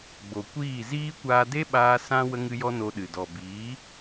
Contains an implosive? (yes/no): yes